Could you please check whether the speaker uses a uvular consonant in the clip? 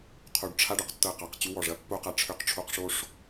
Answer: yes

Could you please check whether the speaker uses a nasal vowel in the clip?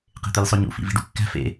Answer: no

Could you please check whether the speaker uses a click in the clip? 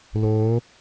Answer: no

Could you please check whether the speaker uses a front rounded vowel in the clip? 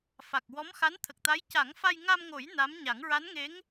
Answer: no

